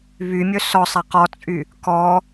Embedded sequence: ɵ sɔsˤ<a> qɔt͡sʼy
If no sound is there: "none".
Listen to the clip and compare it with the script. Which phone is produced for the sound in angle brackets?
a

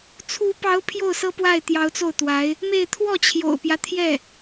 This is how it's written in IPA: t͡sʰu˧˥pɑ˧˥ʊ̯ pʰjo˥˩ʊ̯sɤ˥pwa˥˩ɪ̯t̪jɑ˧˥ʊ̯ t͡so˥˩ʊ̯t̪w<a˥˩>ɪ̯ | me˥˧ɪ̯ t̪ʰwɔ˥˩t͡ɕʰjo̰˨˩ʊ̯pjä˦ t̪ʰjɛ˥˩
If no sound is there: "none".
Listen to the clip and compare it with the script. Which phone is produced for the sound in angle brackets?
a˧˥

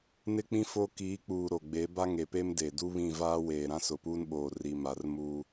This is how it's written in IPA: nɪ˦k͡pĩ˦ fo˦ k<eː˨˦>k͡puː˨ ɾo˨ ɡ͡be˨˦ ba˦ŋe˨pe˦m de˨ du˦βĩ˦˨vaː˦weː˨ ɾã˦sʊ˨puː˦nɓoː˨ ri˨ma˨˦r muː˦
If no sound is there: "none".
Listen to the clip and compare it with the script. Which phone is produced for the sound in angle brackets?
iː˨˦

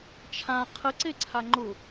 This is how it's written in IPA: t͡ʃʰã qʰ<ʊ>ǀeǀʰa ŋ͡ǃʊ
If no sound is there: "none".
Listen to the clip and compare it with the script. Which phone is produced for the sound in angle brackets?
ə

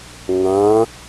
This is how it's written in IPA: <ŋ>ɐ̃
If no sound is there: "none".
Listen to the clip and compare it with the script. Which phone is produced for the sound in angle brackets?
ŋ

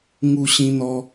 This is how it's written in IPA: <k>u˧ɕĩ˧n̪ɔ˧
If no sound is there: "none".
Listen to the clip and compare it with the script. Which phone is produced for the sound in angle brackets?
ŋ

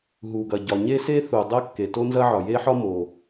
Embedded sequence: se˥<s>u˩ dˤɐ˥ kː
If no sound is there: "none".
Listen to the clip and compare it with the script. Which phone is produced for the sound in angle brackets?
θ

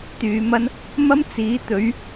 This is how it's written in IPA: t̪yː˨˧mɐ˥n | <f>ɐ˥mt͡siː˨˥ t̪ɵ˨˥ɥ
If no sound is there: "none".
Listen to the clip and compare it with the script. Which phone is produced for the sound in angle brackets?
m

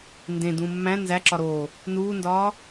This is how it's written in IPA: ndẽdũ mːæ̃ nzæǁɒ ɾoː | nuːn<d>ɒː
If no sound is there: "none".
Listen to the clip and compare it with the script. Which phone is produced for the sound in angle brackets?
d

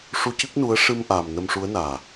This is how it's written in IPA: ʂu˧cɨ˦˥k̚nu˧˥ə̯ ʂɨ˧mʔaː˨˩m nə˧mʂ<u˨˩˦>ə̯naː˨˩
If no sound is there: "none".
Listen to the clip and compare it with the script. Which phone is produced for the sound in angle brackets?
u˧˥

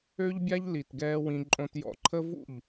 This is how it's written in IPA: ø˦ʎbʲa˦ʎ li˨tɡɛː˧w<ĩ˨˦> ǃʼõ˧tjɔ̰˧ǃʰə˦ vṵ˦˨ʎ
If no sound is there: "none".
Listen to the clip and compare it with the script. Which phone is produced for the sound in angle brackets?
ĩ˧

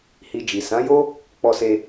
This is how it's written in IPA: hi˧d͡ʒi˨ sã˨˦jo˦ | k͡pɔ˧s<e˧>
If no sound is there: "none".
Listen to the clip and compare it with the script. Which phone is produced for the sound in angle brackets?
e˧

